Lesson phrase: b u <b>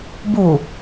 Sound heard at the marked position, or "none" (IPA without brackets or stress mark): none